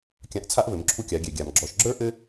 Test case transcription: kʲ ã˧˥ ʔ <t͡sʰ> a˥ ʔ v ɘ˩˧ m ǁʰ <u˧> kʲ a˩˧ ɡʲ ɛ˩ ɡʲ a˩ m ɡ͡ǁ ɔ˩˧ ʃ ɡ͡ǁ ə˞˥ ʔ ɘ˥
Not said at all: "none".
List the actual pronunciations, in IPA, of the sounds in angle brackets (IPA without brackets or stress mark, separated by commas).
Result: t͡sʰ, u˧